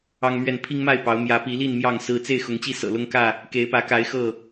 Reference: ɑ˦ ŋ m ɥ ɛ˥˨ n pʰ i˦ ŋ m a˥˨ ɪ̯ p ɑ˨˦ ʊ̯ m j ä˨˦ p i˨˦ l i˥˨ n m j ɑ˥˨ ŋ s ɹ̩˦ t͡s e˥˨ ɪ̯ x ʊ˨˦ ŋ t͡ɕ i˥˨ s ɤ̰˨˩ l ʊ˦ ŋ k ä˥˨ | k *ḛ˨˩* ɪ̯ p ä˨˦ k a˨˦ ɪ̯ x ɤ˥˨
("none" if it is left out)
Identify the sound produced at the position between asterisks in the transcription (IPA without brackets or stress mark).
e˨˦